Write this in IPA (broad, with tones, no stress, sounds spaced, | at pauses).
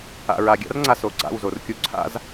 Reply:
a̰˨ ɹ a˨ ɡʲ a̰˦ r ŋ͡ǀ a˨ s o˨ ɡ͡ǀ a̰˦˨ w z o˨ r kʲ u˦ ǀʰ a̰˦ z